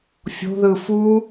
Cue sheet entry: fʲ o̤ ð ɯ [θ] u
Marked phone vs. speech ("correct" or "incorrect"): incorrect